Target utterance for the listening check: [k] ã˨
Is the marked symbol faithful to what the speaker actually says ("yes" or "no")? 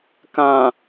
yes